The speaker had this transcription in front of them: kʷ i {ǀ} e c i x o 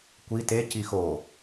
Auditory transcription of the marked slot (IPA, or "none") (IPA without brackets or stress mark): t